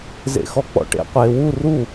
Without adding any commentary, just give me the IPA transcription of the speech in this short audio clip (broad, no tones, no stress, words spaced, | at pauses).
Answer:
zḛxɔk͡pɔ̰ʈḛ qʷeːwu ru